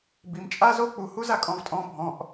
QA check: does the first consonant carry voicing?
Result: yes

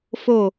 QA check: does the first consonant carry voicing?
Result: no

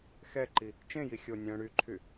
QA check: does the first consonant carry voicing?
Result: no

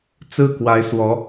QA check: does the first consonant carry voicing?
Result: no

